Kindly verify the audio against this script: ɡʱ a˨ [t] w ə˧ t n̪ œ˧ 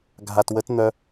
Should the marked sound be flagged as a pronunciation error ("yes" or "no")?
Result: no